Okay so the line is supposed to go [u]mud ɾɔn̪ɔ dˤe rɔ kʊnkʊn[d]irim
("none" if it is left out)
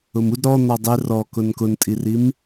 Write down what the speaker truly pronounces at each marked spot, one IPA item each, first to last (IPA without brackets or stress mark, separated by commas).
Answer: ʊ, tʼ